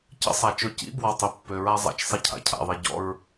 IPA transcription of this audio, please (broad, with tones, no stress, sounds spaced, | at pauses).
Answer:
c ə̰˦ sˤ a˨ t͡ʃ ɵ˦˨ c ḭ˦ b w ɔ˨ tˤ ɵ˨ pː ø˨ ɹ a˦ zˤ a̰˨ t͡ʃ sˤ ɪ˦ cʰ a̰˨ cʰ a̰˨ ðˤ i˨ ɟ ɔ̰˦ ɹ